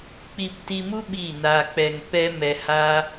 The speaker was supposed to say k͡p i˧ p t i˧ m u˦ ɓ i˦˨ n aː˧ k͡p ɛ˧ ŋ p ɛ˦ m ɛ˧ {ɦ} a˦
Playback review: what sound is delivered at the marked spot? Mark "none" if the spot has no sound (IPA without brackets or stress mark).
h